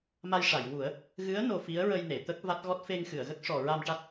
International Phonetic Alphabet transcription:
m a˧ j ʂ a˨˩˨ j w u˨˩˦ ə̯ | ɣ ɨ˧˥ ə̯ n o˧ f i˧˥ ə̯ ɹ ə˧ j n e˨˩˨ t̪ ə˦˥ k̚ v a˦˥ t̚ ɣ ɔ˦˥ t̚ f e˧ ŋ x ɨ˨˩˨ ə̯ ɣ ə˦˥ k̚ ʂ ɔ˨˩ ɹ a˧ m ʈ a˦˥ t̚

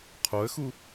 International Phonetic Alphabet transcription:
qʰ o ə̯ x u

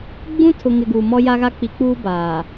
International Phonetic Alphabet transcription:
ɡ͡b ũ˦ tʰ ʊ˨ ŋ ɪ˨ ɡ uː˨ m ɔ˦ j a˦ ɣ a˦ k͡p i˨ k͡p uː˦ b aː˨

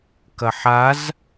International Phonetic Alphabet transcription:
k ɐ ħ a z

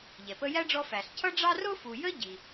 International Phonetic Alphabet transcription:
ʎ ɛ˩ p ə˦ j æ˥ ɖ͡ʐ ɔ˦ f æ˩ ɬ cʰ ʌ˥ ɖ͡ʐ ɑ˥ r ʊ˥ f u˨ j ə˥ ɟ i˨

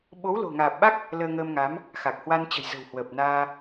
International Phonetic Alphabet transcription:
ɓ o˨˦ w l o̤˨˩ ŋ aː˨˩ p̚ ɓ a˦˥ k̚ | l əː˧ ŋ əː˧ m ŋ a˨˦ m | x a˨˩ k̚ h w a˧ n t͡ɕ ə̤˨˩ j z ə̤˨˩ w h w əː˨˩ p̚ n aː˧

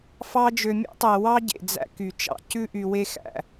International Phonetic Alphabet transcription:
f ɑ˧ d͡ʒ ø˨ mʲ ɑ̰˦ tˤ æ˨ w ɑ˦ ɟ ḛ˨ d͡z æ̰˧ k y˨ t͡ʃ ɑ̰˨ c ʉ˦ ʔ y˧ w e˧ x æ̰˨

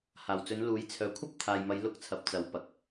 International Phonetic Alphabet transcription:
h aː˨˩ w t͡s ɵ˨˧ n l uː˨˥ j t͡sʰ œː˨ kʷʰ ɐ˥ p̚ t̪ʰ aː˨ j m ɐ˨˧ j l ʊ˧ k̚ t͡sʰ ɐ˨ p̚ t͡s ɐ˨˥ w p ɐ˨ k̚

